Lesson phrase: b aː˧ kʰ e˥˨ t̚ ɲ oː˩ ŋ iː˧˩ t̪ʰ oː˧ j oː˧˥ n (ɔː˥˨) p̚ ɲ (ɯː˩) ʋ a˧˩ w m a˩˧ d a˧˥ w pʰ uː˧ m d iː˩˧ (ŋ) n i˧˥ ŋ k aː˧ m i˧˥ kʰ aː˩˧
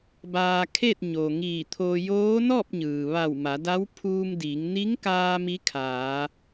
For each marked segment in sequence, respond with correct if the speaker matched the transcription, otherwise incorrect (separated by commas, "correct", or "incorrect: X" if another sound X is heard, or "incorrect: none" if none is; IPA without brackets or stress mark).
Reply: correct, correct, correct